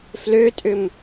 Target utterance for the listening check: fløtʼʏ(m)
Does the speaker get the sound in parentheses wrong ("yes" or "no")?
no